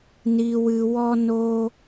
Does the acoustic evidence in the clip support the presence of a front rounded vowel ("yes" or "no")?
no